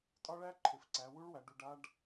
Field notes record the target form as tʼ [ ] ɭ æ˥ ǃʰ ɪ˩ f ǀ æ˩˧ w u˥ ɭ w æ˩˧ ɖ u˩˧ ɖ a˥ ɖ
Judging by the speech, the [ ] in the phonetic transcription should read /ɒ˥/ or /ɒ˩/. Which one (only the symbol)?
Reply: ɒ˥